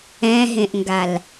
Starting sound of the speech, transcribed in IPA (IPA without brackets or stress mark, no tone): ɛ̃